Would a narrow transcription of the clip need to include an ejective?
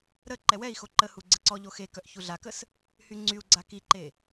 no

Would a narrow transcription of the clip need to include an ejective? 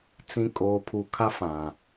yes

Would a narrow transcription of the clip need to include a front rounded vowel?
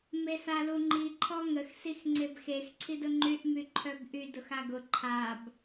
yes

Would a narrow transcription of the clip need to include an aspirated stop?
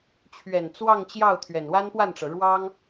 yes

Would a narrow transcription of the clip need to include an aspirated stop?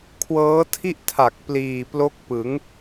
yes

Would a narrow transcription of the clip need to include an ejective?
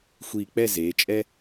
yes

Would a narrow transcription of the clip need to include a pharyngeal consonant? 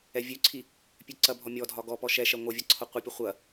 no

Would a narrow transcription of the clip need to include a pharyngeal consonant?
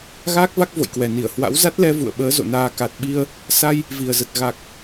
no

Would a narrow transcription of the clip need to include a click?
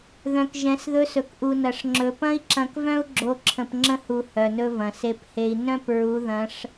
yes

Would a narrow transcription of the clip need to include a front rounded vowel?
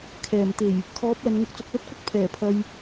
no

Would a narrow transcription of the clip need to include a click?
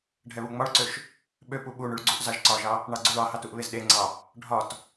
yes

